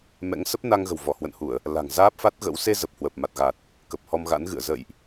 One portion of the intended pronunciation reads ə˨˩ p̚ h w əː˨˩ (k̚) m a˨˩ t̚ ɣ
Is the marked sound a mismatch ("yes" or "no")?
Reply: yes